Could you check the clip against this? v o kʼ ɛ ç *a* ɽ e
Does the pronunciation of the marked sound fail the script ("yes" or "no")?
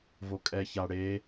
no